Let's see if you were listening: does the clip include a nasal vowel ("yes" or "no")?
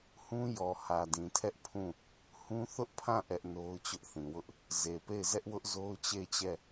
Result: yes